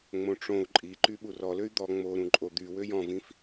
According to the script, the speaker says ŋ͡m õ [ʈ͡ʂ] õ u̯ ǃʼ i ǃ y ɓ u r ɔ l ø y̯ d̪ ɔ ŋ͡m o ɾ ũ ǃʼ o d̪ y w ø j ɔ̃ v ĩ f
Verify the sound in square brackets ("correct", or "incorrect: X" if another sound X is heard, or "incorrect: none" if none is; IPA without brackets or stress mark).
correct